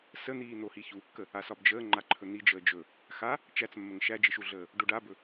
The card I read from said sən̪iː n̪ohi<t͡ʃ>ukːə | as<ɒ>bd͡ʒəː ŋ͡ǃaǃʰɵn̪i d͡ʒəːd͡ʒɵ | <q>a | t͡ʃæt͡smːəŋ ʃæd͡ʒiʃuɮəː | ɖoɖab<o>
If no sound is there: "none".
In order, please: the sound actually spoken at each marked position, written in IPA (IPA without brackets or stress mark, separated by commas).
ç, ɒ, x, ɵ